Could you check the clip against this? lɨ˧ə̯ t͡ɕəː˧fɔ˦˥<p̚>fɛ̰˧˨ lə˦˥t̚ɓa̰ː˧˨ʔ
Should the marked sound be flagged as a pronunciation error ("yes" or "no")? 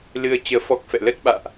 yes